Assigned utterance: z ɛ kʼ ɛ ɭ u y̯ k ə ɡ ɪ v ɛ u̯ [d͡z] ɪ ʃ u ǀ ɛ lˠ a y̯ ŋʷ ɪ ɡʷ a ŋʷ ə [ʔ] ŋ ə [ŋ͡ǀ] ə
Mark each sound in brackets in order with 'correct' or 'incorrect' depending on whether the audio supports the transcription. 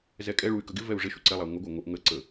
incorrect: ʐ, correct, incorrect: ǀ

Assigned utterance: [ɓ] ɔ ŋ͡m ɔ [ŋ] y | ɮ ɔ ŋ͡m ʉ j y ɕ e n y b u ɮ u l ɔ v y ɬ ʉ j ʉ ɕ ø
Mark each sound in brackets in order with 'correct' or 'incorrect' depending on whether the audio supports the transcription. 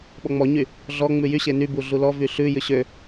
correct, incorrect: ɲ

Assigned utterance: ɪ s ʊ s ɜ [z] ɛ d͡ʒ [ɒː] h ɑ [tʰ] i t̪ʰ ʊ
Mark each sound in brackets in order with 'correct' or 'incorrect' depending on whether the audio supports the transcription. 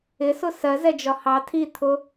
correct, incorrect: ɒ, correct

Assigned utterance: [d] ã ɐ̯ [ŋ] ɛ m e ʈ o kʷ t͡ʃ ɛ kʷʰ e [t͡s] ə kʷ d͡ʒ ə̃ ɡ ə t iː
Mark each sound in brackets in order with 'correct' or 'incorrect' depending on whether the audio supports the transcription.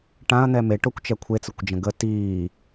incorrect: ʈ, incorrect: n̪, correct

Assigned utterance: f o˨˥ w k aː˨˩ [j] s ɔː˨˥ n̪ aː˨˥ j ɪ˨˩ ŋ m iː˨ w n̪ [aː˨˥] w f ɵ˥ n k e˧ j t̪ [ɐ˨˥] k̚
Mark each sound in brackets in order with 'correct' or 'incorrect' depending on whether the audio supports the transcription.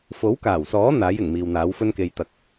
incorrect: w, correct, incorrect: ɐ˨

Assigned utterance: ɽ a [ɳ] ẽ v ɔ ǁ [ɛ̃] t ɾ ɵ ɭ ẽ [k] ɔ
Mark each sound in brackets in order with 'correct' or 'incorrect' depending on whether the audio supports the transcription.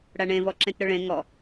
correct, incorrect: ẽ, incorrect: ŋ

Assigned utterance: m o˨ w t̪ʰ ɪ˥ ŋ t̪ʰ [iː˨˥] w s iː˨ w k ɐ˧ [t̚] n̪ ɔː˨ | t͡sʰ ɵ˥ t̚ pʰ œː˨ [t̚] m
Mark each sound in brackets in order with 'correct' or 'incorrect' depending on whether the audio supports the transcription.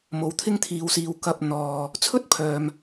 incorrect: iː˨˧, incorrect: p̚, incorrect: none

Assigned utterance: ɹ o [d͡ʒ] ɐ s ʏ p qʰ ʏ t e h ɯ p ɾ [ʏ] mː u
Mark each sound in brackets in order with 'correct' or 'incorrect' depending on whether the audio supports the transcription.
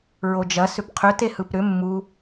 correct, correct

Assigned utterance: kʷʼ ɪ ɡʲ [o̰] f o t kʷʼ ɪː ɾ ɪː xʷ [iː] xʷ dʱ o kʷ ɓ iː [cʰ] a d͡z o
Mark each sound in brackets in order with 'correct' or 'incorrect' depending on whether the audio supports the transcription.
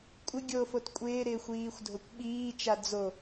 incorrect: o, correct, incorrect: t͡ʃ

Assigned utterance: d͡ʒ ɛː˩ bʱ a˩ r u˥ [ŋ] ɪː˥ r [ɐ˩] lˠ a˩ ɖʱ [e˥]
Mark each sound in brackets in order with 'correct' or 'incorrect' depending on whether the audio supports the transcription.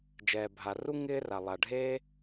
correct, incorrect: a˩, correct

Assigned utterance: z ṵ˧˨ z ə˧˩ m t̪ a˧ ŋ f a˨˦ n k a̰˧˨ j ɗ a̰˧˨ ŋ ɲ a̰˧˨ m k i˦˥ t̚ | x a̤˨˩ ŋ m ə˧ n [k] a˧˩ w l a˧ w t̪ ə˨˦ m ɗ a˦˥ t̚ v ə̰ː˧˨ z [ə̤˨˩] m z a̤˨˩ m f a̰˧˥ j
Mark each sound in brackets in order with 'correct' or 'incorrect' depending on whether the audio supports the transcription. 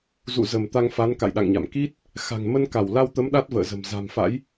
correct, correct

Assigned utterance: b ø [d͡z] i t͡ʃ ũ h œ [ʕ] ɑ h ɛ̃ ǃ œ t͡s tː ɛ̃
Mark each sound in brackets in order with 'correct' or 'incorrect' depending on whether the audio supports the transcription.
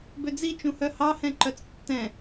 correct, incorrect: h

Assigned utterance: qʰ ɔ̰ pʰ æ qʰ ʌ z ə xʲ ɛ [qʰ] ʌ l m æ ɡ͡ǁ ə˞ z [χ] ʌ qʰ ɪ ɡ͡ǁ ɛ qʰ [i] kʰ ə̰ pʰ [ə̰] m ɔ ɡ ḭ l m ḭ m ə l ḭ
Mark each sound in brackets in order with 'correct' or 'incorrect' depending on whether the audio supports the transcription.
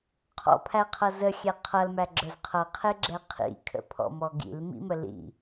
correct, incorrect: qʰ, incorrect: ḭ, incorrect: ɔ̰

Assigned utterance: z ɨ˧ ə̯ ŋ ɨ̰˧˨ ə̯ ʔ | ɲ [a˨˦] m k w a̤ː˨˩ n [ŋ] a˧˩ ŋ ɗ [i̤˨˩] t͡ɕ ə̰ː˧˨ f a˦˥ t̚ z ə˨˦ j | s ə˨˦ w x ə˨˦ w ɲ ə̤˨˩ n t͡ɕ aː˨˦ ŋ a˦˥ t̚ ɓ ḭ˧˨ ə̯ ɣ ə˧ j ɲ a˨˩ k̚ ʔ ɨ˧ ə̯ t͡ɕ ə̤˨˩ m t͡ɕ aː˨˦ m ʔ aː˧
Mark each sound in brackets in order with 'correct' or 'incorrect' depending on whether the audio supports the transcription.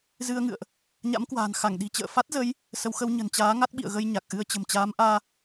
incorrect: a̰˧˥, incorrect: x, correct

